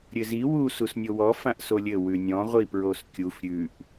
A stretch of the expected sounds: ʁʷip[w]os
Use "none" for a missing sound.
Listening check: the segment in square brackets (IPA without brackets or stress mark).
ɹ